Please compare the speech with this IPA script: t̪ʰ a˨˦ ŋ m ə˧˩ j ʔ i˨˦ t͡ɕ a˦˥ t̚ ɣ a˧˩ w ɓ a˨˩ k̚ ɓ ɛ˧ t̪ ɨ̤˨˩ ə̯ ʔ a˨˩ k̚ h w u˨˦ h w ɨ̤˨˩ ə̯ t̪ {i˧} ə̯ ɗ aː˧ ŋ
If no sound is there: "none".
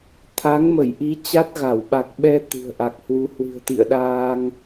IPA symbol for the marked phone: ḭ˧˨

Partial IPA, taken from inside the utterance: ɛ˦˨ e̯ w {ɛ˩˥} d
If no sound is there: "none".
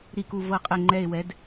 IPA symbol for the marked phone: ɛ˩˥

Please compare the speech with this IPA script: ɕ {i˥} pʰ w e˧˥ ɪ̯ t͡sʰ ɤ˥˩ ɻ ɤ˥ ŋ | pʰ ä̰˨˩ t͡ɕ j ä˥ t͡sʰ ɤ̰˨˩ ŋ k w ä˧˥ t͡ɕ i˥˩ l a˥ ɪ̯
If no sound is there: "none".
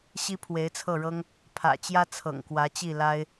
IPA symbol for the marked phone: i˥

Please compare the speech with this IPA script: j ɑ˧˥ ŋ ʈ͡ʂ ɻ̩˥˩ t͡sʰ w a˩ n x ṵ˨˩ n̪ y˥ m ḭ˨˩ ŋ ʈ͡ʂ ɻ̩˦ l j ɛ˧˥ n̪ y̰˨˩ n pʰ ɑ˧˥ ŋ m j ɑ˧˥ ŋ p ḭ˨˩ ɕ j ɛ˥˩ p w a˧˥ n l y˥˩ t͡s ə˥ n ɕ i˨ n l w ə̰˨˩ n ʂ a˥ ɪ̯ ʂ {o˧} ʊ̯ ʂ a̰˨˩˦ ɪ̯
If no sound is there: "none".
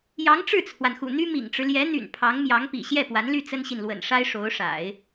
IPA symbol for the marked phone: o˧˥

